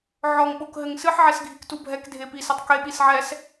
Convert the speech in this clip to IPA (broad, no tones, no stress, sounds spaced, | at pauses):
ʕ ɔ ŋ ɓ o k ɦ ɘ ŋ s ɨ ħ ʕ ɛ s ɡʱ i k t u bʱ ɛ k dʱ e p i s ɘ tˤ k e ɓ i s ʕ ɛ s